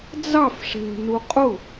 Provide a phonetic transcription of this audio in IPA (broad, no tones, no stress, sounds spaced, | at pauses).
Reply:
d͡z ɑ f ʂ ɛ̤ n u qʼ ʊ